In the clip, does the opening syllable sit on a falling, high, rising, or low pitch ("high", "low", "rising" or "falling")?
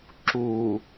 low